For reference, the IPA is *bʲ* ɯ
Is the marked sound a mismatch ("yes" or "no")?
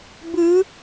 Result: yes